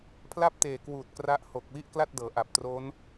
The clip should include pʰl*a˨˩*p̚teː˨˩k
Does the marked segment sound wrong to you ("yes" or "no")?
yes